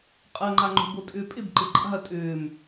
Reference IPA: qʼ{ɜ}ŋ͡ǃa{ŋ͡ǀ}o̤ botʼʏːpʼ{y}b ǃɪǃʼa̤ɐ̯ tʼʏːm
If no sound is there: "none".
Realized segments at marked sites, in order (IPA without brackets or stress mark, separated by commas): ɜ, ŋ͡ǃ, ɪ